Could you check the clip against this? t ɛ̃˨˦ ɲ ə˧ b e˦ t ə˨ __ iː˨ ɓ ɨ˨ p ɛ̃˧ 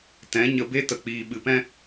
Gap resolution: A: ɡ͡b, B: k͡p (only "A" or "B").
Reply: B